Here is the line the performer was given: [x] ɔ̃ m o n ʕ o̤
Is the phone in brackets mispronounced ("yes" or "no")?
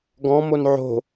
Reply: yes